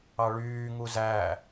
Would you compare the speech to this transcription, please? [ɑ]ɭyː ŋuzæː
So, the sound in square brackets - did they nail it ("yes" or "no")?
yes